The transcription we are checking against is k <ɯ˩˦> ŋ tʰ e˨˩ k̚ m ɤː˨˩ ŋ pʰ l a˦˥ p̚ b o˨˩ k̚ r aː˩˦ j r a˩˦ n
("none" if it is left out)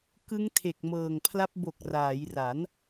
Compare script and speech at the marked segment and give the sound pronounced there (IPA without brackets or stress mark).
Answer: ɯ˦˥